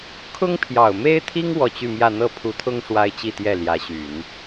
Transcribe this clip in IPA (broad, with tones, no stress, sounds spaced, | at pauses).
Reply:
kʰ ʊ˥ ŋ pʰ j ɑ˨˩ ʊ̯ m e˥ ɪ̯ t̪ʰ i˥ ŋ w ɔ˥˧ t͡ɕ y˥˧ m j ä˥˧ n̪ ɤ˥˩ pʰ u˧˥ t̪ʰ ʊ˥ ŋ ʂ w a˥ ɪ̯ t͡ɕ i˥˧ t̪ j ɛ˥˩ l j ä˧˥ ɕ y˨˩˦ n